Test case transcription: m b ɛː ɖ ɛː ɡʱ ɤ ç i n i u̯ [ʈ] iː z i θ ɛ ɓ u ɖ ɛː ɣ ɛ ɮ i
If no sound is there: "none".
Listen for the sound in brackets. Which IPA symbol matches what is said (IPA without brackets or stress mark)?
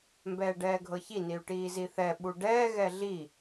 ʈ